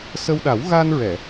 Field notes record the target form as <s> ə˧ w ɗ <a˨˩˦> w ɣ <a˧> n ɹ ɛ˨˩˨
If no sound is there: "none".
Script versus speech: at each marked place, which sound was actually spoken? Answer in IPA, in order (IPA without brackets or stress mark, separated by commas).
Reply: s, a˨˩˦, a˧